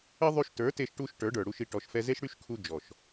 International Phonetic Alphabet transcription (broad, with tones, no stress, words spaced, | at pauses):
ɘ˦ ðˤy˧ʃtə˞˨˦te˧ʃʈu˧ʃ ʈə˞˨˦ɖə˞˨ɽu˧ʃi˧ ʈɔ˨ʃfɛ˧ze˦ʃɽy˦ʃ kʰu˧ d͡ʒɔ˨ʃ